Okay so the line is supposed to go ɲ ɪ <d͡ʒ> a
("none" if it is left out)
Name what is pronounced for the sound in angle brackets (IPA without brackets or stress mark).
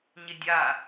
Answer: dʲ